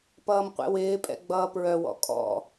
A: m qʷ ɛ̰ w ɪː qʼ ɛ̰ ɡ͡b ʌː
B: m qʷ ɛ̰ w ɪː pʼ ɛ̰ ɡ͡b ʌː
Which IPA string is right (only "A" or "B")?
B